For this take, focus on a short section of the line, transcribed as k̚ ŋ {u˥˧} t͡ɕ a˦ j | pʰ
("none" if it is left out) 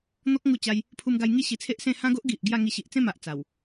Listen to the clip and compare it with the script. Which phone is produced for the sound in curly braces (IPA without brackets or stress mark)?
u˥˧